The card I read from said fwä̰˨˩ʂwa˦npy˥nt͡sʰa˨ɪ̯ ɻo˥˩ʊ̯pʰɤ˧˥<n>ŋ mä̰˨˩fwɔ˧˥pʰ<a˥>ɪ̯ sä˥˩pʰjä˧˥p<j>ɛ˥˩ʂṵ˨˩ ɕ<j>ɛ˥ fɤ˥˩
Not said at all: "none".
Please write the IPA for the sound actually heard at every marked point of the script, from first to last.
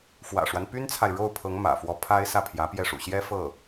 none, a˥, j, j

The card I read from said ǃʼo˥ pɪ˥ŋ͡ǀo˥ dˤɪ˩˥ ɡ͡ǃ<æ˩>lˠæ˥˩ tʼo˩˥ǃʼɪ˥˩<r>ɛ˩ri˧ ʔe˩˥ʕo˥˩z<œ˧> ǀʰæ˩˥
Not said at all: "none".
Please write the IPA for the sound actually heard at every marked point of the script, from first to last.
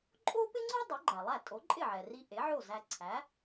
æ˩, ʕ, æ˧

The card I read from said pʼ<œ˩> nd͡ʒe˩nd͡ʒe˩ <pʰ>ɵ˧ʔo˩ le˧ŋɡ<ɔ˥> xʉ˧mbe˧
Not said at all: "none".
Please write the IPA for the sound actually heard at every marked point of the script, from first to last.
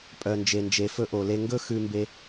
œ˩, f, ɵ˥

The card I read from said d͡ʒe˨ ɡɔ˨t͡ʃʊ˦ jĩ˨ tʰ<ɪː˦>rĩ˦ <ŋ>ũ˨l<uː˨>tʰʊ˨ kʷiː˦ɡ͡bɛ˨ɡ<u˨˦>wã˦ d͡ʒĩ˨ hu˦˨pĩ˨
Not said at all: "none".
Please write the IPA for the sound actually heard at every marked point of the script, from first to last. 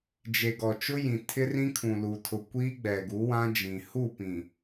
ɪ˦, kʰ, uː˨, u˨˦

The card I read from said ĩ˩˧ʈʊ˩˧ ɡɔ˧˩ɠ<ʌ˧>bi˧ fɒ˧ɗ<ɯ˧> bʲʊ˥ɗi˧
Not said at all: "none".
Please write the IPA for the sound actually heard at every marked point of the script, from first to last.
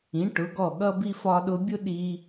ʌ˧, ʊ˧

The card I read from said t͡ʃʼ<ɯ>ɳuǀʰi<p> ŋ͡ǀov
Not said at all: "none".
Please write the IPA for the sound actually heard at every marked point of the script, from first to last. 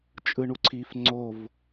ɯ, f

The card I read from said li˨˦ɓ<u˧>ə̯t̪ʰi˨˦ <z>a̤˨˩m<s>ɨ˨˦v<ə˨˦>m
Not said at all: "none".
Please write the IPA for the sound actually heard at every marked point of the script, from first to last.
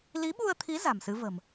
u˧, z, s, ə̤˨˩

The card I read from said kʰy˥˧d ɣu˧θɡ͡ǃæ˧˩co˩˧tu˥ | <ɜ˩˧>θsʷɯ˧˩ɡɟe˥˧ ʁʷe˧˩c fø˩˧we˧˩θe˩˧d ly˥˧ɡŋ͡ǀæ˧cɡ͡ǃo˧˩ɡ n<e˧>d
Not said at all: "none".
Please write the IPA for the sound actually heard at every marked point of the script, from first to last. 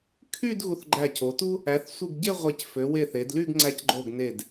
æ˩˧, e˧˩

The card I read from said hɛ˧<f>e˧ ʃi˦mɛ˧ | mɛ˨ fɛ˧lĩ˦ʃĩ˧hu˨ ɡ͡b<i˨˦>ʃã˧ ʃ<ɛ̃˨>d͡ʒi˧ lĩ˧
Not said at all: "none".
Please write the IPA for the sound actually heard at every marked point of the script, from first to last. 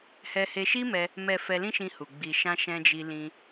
h, i˨, ɛ̃˧

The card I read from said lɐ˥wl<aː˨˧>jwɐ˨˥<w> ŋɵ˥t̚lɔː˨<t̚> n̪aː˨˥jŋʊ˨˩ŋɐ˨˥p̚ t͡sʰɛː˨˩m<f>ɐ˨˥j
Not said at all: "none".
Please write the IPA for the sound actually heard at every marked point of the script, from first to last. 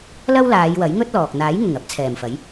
aː˨˧, j, k̚, f

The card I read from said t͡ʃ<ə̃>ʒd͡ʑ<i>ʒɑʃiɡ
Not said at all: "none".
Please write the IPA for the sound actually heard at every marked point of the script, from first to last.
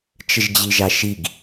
ə, i

